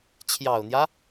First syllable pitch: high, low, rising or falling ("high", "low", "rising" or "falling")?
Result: low